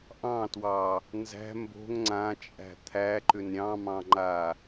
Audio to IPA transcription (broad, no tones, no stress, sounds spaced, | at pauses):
ʔ ɑ̃ t w ɑ | n z æ̤ m b o̤ ŋ ŋ͡ǀ ã t͡ʃʼ æ̤ t̪ʰ æ ǃ ʏ n ɾʲ ɑ̃ m ɑ̃ ŋ͡ǃ a